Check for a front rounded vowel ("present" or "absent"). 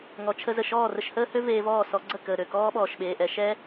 present